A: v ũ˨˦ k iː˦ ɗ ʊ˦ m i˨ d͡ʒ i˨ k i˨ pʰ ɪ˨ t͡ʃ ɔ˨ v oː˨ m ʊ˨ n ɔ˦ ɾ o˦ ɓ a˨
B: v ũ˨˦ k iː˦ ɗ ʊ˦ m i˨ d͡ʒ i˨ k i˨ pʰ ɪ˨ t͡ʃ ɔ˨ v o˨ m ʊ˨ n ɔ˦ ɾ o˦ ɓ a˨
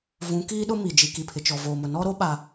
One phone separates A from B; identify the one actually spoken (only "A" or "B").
A